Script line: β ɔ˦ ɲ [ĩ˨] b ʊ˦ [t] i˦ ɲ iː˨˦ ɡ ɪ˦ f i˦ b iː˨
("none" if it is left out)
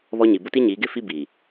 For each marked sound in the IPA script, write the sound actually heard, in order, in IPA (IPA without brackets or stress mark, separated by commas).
i˨, t